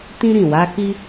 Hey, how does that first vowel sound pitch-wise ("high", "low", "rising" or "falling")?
high